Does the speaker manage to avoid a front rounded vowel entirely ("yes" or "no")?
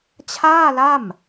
yes